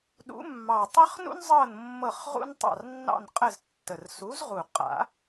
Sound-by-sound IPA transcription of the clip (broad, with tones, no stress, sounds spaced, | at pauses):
ɗ ṵ˨˦ mː ɑ˨˩ tˤ ə˥ χ n ṵ˥ n zˤ ɤ˦˨ n mː ɤ˦˨ χ ʁ ṵ˥ n tˤ ɑ̰˦˨ r nː ɑ̰˦˨ n qʼ ə˦˨ z tː ə˨˩ r s u˨˦ z ʁ u˨˩ qʼ a̰˨˩˦